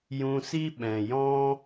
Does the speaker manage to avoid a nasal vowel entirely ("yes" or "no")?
no